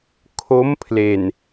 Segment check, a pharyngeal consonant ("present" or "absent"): absent